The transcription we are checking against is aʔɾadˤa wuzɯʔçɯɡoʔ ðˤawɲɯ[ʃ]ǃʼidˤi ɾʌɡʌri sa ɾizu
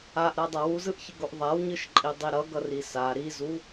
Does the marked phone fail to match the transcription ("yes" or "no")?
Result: no